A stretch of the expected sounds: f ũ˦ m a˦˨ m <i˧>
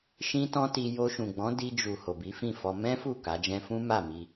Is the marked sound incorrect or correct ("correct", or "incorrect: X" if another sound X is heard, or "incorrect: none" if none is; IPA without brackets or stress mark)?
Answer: correct